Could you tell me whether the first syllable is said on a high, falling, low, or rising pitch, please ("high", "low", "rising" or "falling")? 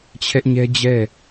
high